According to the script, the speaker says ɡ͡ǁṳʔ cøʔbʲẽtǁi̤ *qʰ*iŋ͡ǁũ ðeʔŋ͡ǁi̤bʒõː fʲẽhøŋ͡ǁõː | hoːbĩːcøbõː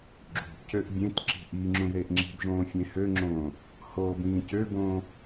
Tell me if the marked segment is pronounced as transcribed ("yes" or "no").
no